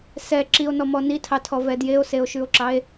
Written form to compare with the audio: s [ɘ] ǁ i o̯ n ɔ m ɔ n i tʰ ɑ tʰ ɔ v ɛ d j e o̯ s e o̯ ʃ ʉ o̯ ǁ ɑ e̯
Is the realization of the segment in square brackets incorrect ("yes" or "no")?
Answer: yes